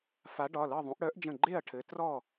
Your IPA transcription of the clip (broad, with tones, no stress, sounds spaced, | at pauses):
f a˨˦ ɖ ɒ˩˧˩ l ɤ˥˨ ðˤ ũ˨˦ ʔ ɽ œ˨˦ ʔ d͡ʒ ə̃˧˩ ɡ͡ǃ e˥˨ ɐ̯ ʈʰ ɘ˨˦ t r ɔ˥˨